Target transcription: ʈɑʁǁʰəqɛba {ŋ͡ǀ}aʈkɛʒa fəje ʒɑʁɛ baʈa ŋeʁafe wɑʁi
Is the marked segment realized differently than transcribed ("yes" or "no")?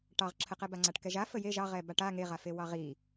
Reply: no